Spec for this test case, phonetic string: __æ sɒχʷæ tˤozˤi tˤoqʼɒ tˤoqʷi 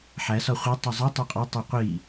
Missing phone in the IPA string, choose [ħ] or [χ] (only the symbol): ħ